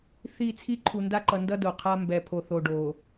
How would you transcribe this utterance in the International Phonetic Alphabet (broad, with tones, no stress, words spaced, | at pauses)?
θi˦˨t͡sʰi˦ ǃʰu˨nda˦ǃʌ˨ndʌ˦ do˨qʰa˦ mbɛ˨pʰo˨θo˨ ɖo˨